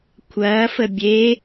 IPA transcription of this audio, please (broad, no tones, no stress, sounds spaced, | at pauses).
kʷʰ ɐː f ə bʲ e